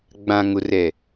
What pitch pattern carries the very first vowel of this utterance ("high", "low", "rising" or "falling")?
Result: low